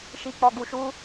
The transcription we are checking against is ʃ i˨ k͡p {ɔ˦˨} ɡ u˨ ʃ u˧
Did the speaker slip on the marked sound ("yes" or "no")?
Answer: yes